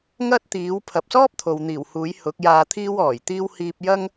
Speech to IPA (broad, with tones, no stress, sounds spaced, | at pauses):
ŋ ɐ˥ t̚ t̪ iː˨˥ w pʰ ɐ˨ p̚ s ɔː˥ p̚ t̪ʰ o˨ w n̪ iː˨˩ w h uː˨˥ j h ʊ˨˥ k̚ j aː˧ t̪ʰ iː˥ w ɔː˨˩ j t̪ iː˥ w h iː˧ p̚ j ɐ˥ ŋ